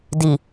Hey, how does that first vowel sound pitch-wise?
low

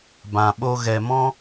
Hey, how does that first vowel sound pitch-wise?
low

